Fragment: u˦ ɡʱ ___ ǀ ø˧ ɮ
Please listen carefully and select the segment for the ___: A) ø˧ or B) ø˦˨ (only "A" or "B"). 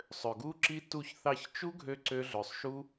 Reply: A